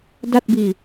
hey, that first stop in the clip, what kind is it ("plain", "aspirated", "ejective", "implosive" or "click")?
plain